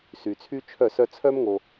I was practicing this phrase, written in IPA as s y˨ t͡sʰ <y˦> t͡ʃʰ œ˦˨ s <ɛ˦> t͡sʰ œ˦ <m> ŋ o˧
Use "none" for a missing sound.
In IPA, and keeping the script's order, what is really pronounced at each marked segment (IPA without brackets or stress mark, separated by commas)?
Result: y˦, œ˦, m